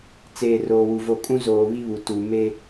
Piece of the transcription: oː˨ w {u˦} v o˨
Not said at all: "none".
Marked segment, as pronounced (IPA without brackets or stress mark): u˨